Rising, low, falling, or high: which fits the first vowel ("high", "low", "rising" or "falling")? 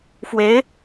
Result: rising